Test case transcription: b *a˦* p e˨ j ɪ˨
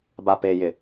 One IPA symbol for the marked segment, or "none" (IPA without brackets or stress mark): a˨